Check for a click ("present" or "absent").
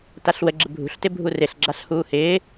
present